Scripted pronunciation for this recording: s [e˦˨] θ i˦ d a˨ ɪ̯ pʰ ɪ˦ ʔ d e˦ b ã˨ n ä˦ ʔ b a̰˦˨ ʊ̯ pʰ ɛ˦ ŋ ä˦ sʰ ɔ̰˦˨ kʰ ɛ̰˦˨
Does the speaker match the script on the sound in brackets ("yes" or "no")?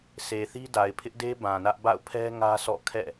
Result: no